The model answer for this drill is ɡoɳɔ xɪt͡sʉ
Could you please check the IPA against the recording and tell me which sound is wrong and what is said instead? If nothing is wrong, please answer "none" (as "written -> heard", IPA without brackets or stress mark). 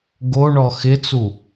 ʉ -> u